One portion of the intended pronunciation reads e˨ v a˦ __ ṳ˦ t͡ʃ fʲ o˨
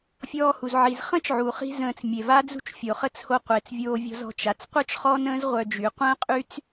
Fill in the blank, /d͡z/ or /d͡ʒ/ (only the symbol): d͡z